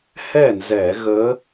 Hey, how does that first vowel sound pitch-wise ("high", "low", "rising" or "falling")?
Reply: falling